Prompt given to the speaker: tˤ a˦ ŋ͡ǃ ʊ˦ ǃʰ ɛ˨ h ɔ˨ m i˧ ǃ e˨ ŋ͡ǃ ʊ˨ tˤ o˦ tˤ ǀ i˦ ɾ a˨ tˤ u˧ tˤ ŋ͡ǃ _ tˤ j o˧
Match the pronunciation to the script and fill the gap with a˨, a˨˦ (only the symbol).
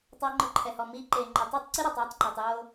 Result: a˨